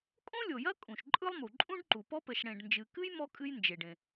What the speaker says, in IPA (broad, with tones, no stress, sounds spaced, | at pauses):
kʼ õ˥ lʲ o˩ j ɐ˥ kʼ ũ˩ ʃ ǃʼ ɯ˥ lˠ m u˩ ǃʼ ũ˥ ɖ ǃ u˩ p ɔ˥ p ɘ˩ ʃ ɽ ẽ˩ ɖ n d͡ʒ ɨ˩ k ɨ˥ j m ɔ˥ kʼ ɨ˥ j n d͡ʒ e˩ ɖ ẽ˩